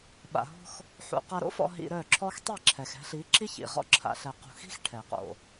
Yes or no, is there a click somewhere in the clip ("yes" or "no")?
yes